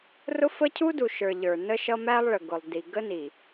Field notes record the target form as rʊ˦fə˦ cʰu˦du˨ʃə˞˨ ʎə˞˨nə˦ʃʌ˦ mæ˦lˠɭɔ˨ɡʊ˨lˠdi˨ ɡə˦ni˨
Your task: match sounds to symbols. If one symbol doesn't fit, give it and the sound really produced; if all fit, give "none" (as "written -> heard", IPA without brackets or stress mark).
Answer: ɔ˨ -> ə˨